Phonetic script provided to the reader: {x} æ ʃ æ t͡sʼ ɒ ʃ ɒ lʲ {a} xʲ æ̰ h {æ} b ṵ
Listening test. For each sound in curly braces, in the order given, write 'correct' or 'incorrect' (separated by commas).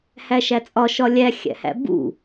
incorrect, incorrect, incorrect